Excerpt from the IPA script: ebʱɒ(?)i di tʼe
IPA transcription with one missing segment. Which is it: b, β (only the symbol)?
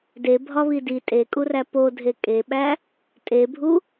β